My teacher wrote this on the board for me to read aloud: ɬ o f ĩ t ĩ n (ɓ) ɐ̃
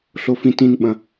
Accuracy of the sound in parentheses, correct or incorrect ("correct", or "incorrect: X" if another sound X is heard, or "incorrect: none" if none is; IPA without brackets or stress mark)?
correct